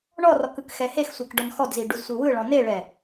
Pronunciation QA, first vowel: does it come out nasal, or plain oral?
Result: oral